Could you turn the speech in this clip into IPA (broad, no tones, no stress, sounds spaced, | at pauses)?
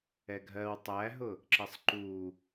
ɛ ɡʱ ɜ w tˤ æ ɦ ʊ | ǁ ə sˤ ǃ u